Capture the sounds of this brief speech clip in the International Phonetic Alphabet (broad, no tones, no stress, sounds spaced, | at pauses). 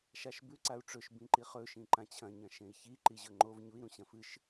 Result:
ʃ a ʃ b ʉ ǀ a u̯ ʈ͡ʂ ɵ ʃ b ĩ ǃ i χ ɵ ʃ ĩ ǃ ã t͡ɕʰ ɐ̃ ɲ ɐ̃ ʃ ẽ i̯ ç i ǃ i ʑ ɵ ŋ͡ǃ o v ɲ u i̯ ɾ ũ ɕ ɐ̃ f ɨ ʃ